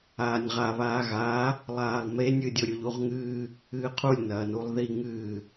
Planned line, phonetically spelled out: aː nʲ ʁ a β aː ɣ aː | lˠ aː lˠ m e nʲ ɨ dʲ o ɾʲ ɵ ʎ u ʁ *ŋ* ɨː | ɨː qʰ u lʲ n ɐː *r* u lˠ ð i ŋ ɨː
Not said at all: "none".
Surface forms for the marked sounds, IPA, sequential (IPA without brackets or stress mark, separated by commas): ŋ, n